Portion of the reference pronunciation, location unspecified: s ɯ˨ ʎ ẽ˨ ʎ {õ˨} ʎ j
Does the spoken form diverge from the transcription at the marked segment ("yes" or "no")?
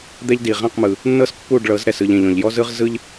yes